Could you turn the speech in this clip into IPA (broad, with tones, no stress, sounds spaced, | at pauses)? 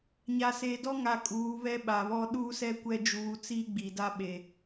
ɲ a˨ s eː˨ d ɔ˦ ŋ a˨ kʼ uː˨˦ β ɛ˦ ɓ a˨ β ɔ˦ ɗ uː˦ s ɛ˦ kʷ ɛ˦ d͡ʒ uː˨˦ t͡s iː˦ ɡ͡b i˨ d a˦ ɓ e˨